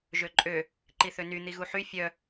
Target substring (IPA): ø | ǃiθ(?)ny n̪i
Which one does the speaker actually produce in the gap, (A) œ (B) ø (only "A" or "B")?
B